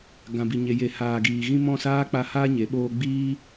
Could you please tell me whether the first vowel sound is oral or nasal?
nasal